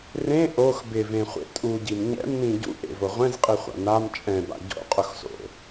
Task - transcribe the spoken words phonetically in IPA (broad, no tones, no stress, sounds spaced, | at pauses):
r ẽ ʔ o x b ɪ v ẽ χʷ ḛ tʼ u ɟ i m ɲ ɛ̰ m n ĩ ɟ ṵ ʔ ḛ v o ʁʷ ɛ̃ z qʼ i χʷ a̰ n a m t͡ʃʼ ɛ̃ b a̰ ɟ o̰ qʼ ʊ x s o̰